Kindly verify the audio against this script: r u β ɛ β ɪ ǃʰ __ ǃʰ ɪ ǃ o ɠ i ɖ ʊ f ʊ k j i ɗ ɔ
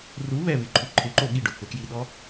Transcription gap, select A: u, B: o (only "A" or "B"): A